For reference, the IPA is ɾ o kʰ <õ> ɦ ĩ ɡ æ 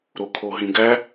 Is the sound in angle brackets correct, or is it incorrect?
incorrect